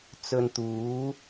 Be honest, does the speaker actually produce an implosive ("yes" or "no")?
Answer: no